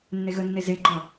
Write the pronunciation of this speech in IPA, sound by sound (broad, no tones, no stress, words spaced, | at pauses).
nːeɣənːe zeɡ͡ǃɒ